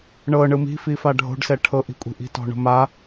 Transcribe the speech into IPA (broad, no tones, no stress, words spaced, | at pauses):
ɳɤ ɳɯmi̤fi faɖʱo̤ɖsɛ ʈʰɤʔi̤kʷʼi̤ʔi̤ tɔ̤ɳo̤ma